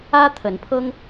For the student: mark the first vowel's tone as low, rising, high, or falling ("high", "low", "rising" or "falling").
high